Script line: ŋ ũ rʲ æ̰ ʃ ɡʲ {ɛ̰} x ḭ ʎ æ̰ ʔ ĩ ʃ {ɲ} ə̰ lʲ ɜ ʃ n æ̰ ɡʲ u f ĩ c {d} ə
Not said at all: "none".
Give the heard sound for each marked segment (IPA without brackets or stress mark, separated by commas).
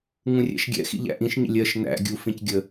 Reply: ɛ̰, ɲ, ɡʲ